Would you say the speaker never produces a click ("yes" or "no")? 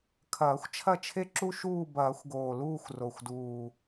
no